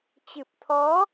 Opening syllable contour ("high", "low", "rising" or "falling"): low